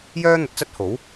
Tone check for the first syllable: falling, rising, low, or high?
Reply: high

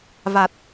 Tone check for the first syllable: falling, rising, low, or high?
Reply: low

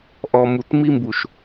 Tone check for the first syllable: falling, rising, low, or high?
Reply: low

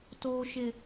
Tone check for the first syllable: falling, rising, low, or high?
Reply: high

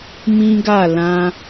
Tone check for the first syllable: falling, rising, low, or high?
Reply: high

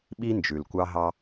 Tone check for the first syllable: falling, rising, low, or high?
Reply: high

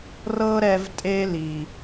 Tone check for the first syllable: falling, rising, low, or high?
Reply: high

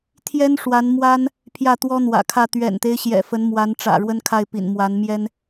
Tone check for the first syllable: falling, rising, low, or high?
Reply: high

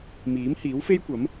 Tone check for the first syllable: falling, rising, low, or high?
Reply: rising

